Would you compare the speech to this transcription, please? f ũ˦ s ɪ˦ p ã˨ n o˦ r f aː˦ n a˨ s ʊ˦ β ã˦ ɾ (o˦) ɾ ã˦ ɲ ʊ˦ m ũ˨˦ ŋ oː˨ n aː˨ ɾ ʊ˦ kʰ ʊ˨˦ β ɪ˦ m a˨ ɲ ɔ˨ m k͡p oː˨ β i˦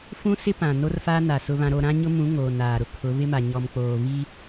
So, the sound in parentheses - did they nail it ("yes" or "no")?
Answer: yes